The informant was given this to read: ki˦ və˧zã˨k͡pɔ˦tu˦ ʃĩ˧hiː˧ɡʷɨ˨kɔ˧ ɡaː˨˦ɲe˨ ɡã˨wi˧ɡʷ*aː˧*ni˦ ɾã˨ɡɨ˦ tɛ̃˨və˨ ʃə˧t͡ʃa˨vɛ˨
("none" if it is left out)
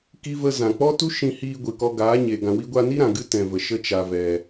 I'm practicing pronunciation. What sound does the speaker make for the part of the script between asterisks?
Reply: a˧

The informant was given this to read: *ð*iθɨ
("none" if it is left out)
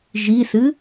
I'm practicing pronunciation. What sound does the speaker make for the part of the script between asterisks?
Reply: ʒ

